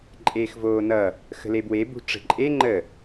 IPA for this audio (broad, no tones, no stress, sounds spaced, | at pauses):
ǃʼ eː x v oː n ʌ | x ə̤ l e b w e b ṳ ʈ͡ʂ ə̤ ǃʼ e ŋ͡ǃ ə